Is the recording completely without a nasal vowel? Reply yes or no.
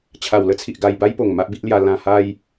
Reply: no